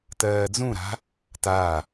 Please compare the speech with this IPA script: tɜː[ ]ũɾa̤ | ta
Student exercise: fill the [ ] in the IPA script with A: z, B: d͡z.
B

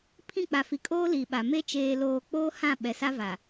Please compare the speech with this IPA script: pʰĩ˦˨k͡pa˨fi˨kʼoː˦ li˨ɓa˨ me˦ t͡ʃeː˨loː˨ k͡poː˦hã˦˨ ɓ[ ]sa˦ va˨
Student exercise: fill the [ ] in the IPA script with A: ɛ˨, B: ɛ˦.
A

